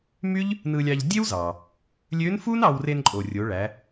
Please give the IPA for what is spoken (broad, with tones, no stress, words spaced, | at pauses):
my˥ʎ | nɯ˧lʲɑ˧ʎ dʲe˥wzɑ˩ | lʲø˧˥nfu˥n ɑ˧wre˧n ǃʼo˩rʲo˩˧ɭæ˩˧